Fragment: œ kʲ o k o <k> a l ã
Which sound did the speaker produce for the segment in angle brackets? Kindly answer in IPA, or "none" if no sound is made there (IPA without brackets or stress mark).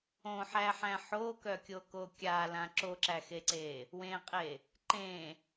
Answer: kʲ